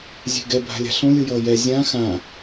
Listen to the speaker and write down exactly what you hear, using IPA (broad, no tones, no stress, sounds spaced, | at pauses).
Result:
zʲ e̤ ɡ ɛ bʱ a̤ lʲ a̤ ɬ õ lʲ ɯ j ʌː j ɛ zʲ ã x ã